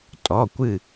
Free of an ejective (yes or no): no